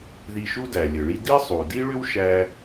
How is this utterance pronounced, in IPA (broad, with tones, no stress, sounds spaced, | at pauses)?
ð i˧ ʃ u˥ d æ˩ lʲ ɘ˩ ɭ i˥ d i˥ sˤ u˩ d i˥ ɭ ʏ˥ w ʃ æ˥